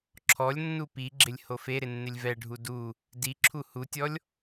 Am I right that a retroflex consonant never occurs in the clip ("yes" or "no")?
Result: no